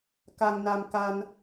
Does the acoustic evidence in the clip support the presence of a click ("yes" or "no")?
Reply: no